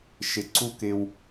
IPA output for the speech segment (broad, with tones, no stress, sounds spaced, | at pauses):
ʃ ɪ˨ ǀ u˦ k ɪ˦ w